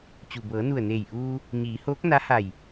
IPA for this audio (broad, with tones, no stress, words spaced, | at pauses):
t͡ɕu˩bɤː˩˧nu˧˩ə̯neː˧˩j ʔuː˧ | ɲiː˩˧hoː˧˥k̚ na˧˥ha˧˩j